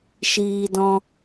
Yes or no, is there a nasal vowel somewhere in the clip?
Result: yes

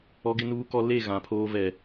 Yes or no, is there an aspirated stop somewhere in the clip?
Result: yes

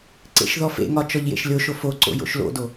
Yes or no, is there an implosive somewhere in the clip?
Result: no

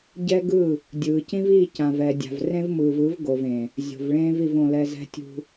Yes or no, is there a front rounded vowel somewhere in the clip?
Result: no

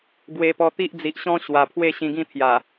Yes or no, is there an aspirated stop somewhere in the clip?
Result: yes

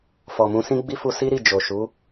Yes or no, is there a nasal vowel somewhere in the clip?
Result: yes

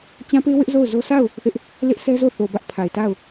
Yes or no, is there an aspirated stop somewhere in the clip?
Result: yes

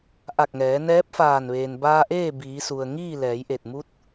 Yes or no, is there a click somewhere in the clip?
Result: no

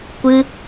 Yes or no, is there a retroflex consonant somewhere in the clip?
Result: no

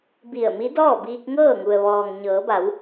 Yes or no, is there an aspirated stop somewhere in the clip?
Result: no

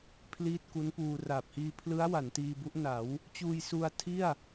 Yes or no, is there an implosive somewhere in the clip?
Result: no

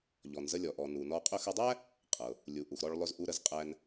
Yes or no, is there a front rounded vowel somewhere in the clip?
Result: no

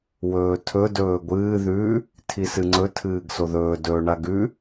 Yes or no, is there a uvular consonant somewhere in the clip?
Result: no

